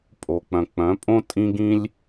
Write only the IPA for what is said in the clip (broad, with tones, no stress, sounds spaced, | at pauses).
pʼ o˩ k͡p œ̃˩ k͡p œ̃˩˥ pʼ õ˥ tʼ ĩ˥ ɡ ĩ˥ lʲ